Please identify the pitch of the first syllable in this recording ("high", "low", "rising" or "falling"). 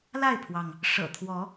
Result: falling